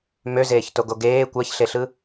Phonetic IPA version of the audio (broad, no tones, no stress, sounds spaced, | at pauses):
m ø z eː ç t o ɡ o ɡ eː kʷ æ ç ɬ e ɬ ɯ